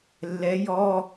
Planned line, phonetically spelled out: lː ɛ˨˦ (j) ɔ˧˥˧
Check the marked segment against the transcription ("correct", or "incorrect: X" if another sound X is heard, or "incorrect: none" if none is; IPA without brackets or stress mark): correct